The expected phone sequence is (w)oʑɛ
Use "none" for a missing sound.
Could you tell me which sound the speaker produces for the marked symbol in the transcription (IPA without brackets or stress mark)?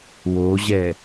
w